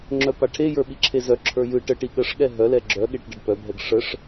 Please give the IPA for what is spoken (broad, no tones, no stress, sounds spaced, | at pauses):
ŋ͡ǁ œ p a ʈʰ e j ə˞ ɓ i ǁʰ e z œ ǁʰ ə˞ j ɯ ʈ ə ʈ i ɠ ə ʂ ɠ ɛ ɦ œ l ɛ ɡ͡ǁ œ ɠ e ʈ ɖ ə ɖ p œ bʱ ɛ ɡ ʂ ə ʂ